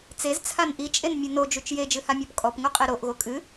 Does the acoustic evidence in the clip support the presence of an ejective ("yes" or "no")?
yes